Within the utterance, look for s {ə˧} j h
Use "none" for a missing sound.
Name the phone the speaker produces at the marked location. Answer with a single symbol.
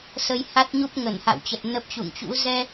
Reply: ə˧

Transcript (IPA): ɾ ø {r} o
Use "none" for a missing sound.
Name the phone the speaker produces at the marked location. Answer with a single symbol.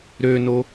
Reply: n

